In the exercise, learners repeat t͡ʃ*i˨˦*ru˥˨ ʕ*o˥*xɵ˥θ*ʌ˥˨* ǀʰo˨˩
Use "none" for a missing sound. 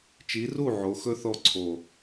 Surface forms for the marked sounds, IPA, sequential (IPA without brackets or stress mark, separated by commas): i˨˦, o˨˦, ɔ˥˨